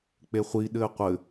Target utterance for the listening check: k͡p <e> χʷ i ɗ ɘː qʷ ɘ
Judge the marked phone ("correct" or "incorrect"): correct